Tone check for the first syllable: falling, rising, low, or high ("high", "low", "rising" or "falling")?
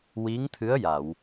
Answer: rising